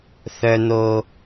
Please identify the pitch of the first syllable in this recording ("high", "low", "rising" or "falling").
high